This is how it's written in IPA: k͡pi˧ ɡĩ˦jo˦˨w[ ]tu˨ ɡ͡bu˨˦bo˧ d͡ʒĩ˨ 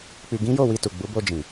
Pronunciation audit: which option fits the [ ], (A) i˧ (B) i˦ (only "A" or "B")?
A